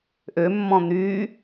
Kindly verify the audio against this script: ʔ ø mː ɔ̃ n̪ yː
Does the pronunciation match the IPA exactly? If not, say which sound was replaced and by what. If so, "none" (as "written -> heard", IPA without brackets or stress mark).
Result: none